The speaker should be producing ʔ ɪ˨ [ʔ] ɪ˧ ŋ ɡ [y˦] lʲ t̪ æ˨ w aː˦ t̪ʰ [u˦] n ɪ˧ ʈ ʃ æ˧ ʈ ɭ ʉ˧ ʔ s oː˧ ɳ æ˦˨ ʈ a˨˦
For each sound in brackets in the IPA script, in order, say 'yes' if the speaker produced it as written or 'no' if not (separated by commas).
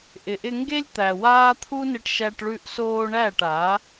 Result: yes, no, yes